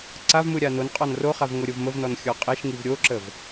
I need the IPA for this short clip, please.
ǀ a v m ɯ ɾʲ a n o n qʼ ɔ n r o χ a v ŋ o ɾʲ o v m ə v n ɔ n xʲ ɔ qʼ e ʃ ŋ i v ɾʲ o ǁ ə v

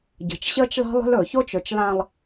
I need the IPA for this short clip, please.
ɟ ə̤˨ t͡ʃ ɕ əː˦ t͡ʃ l ɑ̤˦ lˠ ə̤˦ l ɵ˨ ç o˦ t͡ʃ ɵ˨ t͡ʃ l ã˨ lˠ

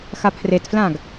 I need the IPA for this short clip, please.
x a pʰ r e t f l ã ɡ

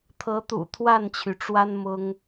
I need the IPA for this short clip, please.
t̪ʰ ɤ˨˦ t̪ ṵ˨˩ t̪ʰ w a˥˨ n t͡ɕʰ y˩ ʈ͡ʂ w a˦ n m ʊ˦ ŋ

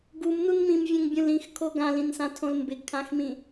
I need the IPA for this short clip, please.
ɡ u m n u n m ĩ m vʲ ɛ̃ ŋ bʲ ũ l ĩ x kʰ o ɡ ã l ĩ n s ã tʰ õ l m b ɪ ɡ kʰ ã x m ĩ

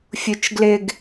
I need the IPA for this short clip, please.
fʲ u t͡ʃ ɡ l ɪ ɡ

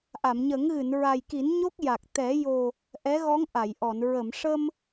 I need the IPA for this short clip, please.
ʔ a˨˩˨ m ɲ əː˨˩˦ ŋ ɣ ɨ˨˩˨ n ɹ a˨˩ j k i˨˩˦ n ɲ o˦˥ k̚ j a˨˩ k̚ t̪ ɛ˨˩˦ j o˨˩ | ʔ ɛ˧˥ ɣ ɔ˧˥ ŋ ʔ a˨˩˨ j ʔ ɔ˨˩˨ n ɹ ə˨˩˨ m ʂ əː˧ m

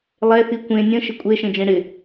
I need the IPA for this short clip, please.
lˠ ɛ θ i kʷ ẽ nʲ ə̃ ʃ ɪ kʷʼ e ʃ ẽ d͡ʒ ẽ ɽ ɪ

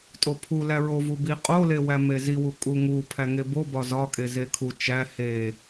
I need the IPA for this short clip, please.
tʼ o pʰ u l æ ɹ o v u b i qʼ o l e w æ m e z i w u kʼ u ŋ u pʰ æ ŋ e b o b ɒ z ɒ kʼ e z e kʰ u t͡ʃ æ h e

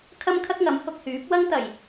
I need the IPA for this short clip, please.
kʰ ɐ˥ m kʰ ɐ˥ k̚ ŋ ɐ˨˥ m h ʊ˧ k̚ h yː˨˥ p̚ w ɐ˥ ŋ t̪ ɐ˨˩ j

